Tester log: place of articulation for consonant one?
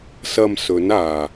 alveolar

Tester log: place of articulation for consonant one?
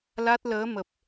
alveolar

